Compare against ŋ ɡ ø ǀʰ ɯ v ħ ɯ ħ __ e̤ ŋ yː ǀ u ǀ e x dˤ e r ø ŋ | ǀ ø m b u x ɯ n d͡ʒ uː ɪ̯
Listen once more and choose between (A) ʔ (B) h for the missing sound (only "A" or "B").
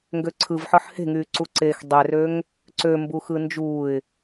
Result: B